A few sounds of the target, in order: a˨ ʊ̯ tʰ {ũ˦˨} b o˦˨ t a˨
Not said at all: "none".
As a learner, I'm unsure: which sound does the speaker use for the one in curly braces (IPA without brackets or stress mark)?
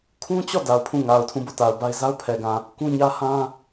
ũ˦˨